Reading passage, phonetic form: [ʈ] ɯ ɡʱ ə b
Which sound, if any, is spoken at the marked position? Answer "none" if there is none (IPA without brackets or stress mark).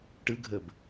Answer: ʈ